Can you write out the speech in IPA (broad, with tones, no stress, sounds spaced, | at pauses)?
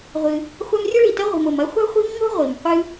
ʁʷ ɨ˨ | χʷ a˦ m rʲ ɐ˥ ɭ i˨ t ɐ˥ ʁʷ i̤˨ m o˨ m ɐ˦ χʷ a̤˥ χʷ i̤˦ m ŋ o̤˥ ʁʷ i˩ m qʷ ɨ˦